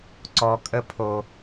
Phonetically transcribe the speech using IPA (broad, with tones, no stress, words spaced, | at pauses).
ǀɔ˧kʼə˦pʰo˧